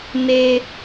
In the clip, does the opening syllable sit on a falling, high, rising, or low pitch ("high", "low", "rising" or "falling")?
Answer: low